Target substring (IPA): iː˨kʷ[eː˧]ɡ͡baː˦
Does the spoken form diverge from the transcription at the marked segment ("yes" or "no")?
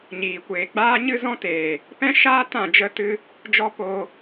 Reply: yes